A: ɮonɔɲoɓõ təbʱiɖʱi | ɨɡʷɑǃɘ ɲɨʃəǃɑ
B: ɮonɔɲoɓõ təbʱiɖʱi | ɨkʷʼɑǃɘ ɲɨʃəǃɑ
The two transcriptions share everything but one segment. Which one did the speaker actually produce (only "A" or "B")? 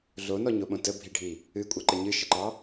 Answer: B